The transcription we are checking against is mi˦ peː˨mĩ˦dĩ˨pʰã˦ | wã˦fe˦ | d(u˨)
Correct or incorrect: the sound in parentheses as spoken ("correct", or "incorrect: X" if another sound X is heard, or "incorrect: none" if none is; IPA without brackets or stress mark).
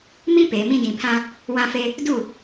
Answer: incorrect: u˦˨